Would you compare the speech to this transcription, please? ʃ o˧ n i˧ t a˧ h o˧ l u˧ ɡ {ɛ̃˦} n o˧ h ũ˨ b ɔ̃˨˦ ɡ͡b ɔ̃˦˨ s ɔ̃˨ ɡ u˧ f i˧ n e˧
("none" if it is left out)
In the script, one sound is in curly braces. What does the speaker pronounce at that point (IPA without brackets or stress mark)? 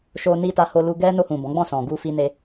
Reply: ɛ˦